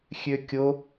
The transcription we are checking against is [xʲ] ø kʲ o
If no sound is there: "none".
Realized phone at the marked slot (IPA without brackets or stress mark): xʲ